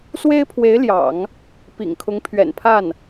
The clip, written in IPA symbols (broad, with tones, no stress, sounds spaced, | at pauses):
s w e˥ ɪ̯ pʰ w e˧˥ ɪ̯ l j ɑ̰˨˩˦ ŋ | p ḭ˨˩ ŋ kʰ ʊ˧˥ ŋ pʰ ɥ ɛ̰˨˩ n pʰ a˥˩ n